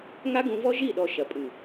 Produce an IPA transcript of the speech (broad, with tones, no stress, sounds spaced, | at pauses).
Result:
ŋ a˦ ɡ ũ˧ v ɔ˦ ʒ i˦˨ ɗ ɔ˨ ʃ ɐ˨ pʼ ɨ˨